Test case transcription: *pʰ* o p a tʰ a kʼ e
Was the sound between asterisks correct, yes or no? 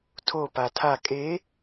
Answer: no